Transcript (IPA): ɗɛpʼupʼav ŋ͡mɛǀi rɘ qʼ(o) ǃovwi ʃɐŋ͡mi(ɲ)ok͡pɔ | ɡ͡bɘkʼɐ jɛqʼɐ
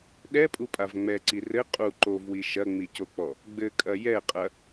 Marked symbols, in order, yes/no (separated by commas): no, no